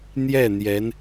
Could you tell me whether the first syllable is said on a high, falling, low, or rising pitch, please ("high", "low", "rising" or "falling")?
falling